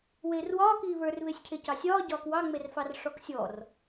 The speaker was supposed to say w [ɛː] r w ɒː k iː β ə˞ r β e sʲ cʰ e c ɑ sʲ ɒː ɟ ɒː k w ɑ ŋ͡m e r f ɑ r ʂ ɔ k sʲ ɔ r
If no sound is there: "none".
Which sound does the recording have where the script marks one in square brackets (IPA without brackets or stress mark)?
eː